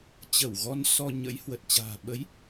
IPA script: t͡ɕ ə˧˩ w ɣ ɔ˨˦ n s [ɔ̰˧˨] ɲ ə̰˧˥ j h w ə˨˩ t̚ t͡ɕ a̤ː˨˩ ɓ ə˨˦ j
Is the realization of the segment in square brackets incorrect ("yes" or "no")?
yes